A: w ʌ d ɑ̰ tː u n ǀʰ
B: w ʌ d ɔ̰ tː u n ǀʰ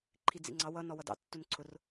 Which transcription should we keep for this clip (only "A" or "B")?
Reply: A